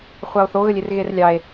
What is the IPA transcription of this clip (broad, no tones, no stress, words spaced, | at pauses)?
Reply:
χʷɑo̯θoɣəlʲer ɣerlʲɑe̯